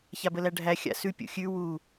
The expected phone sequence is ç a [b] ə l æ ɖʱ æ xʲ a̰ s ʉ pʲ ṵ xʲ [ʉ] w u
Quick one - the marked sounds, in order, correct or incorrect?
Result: correct, correct

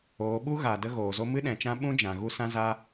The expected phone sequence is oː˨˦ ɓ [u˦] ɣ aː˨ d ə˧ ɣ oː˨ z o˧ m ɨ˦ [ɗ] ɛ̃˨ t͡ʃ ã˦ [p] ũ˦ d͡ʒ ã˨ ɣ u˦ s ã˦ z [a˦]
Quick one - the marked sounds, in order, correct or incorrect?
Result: correct, correct, incorrect, correct

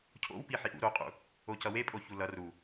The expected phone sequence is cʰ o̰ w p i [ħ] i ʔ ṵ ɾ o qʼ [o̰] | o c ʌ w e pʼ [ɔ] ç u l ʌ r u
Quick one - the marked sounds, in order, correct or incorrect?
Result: correct, incorrect, incorrect

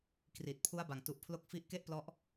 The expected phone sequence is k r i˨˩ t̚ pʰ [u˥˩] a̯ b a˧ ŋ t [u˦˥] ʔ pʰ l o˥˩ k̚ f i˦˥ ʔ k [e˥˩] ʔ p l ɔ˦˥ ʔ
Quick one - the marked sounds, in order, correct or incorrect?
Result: incorrect, correct, correct

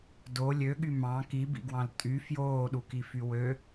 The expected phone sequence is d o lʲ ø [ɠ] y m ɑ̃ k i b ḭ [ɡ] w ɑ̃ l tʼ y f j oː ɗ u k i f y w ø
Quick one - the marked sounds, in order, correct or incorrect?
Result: correct, correct

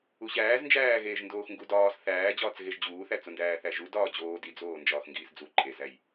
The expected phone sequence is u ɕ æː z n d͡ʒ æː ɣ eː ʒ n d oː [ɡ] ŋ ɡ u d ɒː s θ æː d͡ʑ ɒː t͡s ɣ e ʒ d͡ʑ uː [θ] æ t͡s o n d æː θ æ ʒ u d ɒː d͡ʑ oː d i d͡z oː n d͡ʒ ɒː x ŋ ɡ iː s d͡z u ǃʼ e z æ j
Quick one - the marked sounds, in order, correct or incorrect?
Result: incorrect, correct

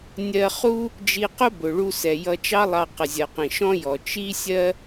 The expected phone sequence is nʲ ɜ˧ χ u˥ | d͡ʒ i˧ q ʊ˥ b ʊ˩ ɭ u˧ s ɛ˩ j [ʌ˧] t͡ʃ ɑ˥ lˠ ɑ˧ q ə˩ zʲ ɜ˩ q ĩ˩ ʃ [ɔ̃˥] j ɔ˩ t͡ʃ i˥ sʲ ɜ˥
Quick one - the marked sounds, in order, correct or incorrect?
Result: correct, correct

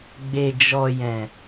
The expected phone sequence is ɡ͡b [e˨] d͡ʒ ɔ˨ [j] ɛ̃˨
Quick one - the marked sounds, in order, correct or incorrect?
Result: correct, correct

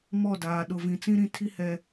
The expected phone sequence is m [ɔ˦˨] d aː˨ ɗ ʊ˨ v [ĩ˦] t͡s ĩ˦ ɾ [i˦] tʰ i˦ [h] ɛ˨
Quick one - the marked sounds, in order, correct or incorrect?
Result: correct, incorrect, incorrect, correct

